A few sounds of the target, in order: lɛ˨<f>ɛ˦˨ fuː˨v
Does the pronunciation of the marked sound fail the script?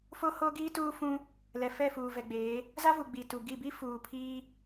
no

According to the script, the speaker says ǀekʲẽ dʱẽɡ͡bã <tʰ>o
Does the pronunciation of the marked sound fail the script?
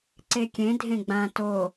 yes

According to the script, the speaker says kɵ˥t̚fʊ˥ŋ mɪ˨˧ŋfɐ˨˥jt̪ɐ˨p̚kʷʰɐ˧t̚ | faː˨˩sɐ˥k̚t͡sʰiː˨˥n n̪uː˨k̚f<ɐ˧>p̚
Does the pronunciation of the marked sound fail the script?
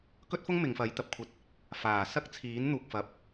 yes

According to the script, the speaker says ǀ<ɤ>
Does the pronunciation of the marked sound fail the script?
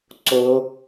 yes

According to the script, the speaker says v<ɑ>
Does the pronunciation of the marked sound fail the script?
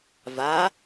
yes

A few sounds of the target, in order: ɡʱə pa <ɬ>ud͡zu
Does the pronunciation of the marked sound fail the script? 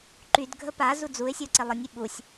yes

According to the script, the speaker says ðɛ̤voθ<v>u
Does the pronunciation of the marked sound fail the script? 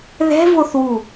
yes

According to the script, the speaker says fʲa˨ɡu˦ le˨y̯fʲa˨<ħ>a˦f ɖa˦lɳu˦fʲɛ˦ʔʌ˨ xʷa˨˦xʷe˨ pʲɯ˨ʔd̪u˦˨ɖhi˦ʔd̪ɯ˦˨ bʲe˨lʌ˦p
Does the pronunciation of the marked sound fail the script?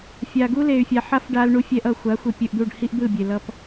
no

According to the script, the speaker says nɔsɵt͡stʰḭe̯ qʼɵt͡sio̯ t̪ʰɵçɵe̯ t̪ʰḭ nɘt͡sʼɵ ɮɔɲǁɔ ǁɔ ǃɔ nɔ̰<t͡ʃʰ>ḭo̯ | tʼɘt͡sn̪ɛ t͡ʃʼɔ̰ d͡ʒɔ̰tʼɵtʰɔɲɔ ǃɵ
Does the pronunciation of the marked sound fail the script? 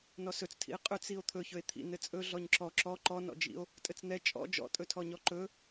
yes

